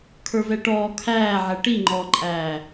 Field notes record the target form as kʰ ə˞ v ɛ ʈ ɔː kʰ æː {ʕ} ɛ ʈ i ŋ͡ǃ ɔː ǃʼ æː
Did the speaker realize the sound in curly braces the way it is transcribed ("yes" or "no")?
yes